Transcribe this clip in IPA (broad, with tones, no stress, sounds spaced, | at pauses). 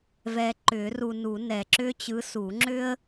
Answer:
v ɛ˨ ǃ ʏ˨˩˦ r u˨ n u˨˩˦ n ɛ˨ ǁ ʏ˥ t͡ɕ ɯ˧˥ s u˨˩˦ ŋ͡ǁ ʏ˥ ə̯